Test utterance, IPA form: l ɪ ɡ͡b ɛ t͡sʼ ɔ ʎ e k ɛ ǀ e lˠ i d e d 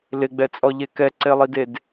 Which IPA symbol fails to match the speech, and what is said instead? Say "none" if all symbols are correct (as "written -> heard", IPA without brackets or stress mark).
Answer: none